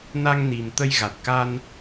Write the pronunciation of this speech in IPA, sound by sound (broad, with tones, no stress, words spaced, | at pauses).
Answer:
na˧ŋni˨˩m t̪ə˧jɣa˨˩t̚ka˧n